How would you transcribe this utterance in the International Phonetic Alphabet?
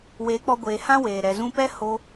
w e˨˦ k͡p ɔ˧ ɡʷ eː˨ h ã˦ w eː˨ ɾ ɛ˨ z ũ˧ p ɛ˦ h o˧

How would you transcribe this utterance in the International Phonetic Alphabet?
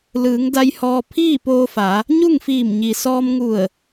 l ɯː˩˧ ŋ d a˧ j h ɔː˧ pʰ iː˥˨ p oː˧ f a˩˧ | ɲ u˥˨ ŋ f iː˧˩ m ɲ i˩ s ɔː˧ m ŋ u˧˩ ə̯

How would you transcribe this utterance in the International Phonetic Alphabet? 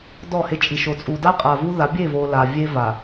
d ɔ˦˨ h e˦ t͡ʃʼ i˨ ʃ o˨ t͡sʼ u˨ d a˦ qʼ a˨ v u˦ ð a˨˦ bʲ e˦˨ v o˨ l a˨ vʲ e˦ v a˨

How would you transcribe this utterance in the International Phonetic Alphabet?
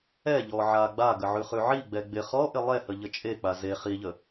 ɛ ʎ ɔ ʕ a ɡ͡b a ɡ ə ʕ ʉ χ ʉ ʕ i ɡ͡b ɛ ɡ͡b ɪ χ ɔ ʔ ɪ lˠ ɛ h ə ʎ ə t͡ʃʼ e k͡p a z e χ i ʎ ə

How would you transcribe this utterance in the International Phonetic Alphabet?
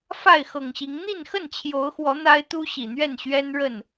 f a˥˨ ɪ̯ x ɤ˨˩ ŋ ɕ i˨˦ ŋ n̪ i˥˨ n x ə˥˨ n t͡ɕʰ j o˨˦ ʊ̯ x w ɔ˨˦ n̪ a˦ ɪ̯ t̪ u˦ ɕ i˨˩ n̪ ɥ ɛ˥˨ n ɕ ɥ ɛ˦ n ɻ ə˥˨ n

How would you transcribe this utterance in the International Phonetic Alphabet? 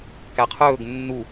k æ qʰ ɵː ɡ nː u

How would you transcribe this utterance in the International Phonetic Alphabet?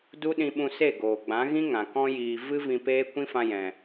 d u˦ ɗ ĩ˧ ɓ ũ˧ s e˦˨ ɡ oː˨ ɡ͡b ã˨˦ ɣ ĩ˦ ŋ ã˨ k ɔ̃˦ j iː˧ v ɨ˦ v ĩ˧ p eː˦ kʷ ĩ˦ f ã˧ j ɛ̃˨

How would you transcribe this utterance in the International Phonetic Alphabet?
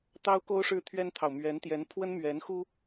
t̪ ɑ˥ ʊ̯ k o˥ ʊ̯ ʂ ɻ̩˥˩ t̪ʰ ɥ ɛ˥ n t̪ʰ ɑ˨ ʊ̯ m ɥ ɛ˧˥ n t̪ j ɛ˧˥ n pʰ w ə˥ n m ɥ ɛ˧˥ n x u˥

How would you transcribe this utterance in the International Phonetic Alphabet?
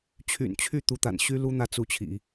t͡ɕʰ y̰˨˩ n t͡ɕʰ y˥˩ t̪ u˧˥ t̪ a̰˨˩ n ɕ y˥ l u˥ n̪ ä˥˩ t͡s u˧˥ t͡ɕʰ ḭ˨˩˦

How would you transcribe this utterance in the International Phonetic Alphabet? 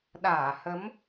ɗ aː˧˩ h ə˨˦ m

